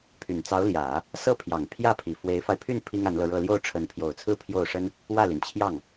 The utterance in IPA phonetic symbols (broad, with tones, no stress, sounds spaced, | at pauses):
pʰ y˨˩ n t͡s ɑ˧˥ ʊ̯ l j ä˨˩˦ | s ɤ˥˩ pʰ j ɑ˨˩ ŋ pʰ j ä˥˩ pʰ i˨˩ f w e˧˥ ɪ̯ f a˧ ɪ̯ pʰ y˥˩ n pʰ i˥ ŋ a˧˥ n l ɤ˧ ɻ ɤ˥˧ l j o˥˩ ʊ̯ ʈ͡ʂʰ ə˧˥ n pʰ j o˨˩ ʊ̯ t͡sʰ ɹ̩˥˧ pʰ j o˥˩ ʊ̯ ʂ ə˥ n | w ä˥˩ l i˩ n t͡ɕʰ j ɑ˥˩ ŋ